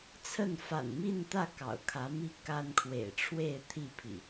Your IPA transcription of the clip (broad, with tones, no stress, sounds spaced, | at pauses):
t͡sʰ ə˥˨ n f a̰˨˩ n m i˥˨ n t̪ ä˥˨ k ɑ̰˨˩ ʊ̯ kʰ ä˨˦ m i˥˨ k a˦ n kʰ w ḛ˨˩ ɪ̯ ʈ͡ʂʰ w e˥˨ ɪ̯ t̪ʰ i˥˨ pʰ ḭ˨˩